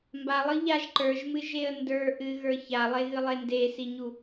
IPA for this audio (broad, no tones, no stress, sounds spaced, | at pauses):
m b a lˠ ɨ ʎ a ʒ ǃ ə˞ ʒ m ɨ ʒ e ə̯ n d ə˞ ʔ ɨ ɣ ə˞ ç a lˠ e ɣ ɨ lˠ e n d e s i ɲ u